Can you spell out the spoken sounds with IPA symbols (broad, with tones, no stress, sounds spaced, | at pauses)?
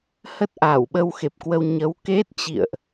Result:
h ə˦˥ t̚ ʔ aː˧˩ w ɓ ə˧ w x e˨˩ p̚ k w ə˧ w ɲ ə˨˦ w k e˦˥ t̚ t͡ɕ ḭ˧˨ ə̯ ʔ